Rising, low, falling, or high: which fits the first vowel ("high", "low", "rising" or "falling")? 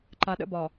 low